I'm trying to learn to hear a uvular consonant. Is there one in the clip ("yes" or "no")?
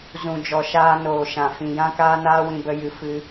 no